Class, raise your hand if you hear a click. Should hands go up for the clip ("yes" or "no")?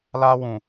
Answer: no